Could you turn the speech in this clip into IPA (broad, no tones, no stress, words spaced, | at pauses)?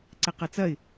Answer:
ǀɛqɐt͡sɐɪ̯